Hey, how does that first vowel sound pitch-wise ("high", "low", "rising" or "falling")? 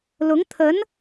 rising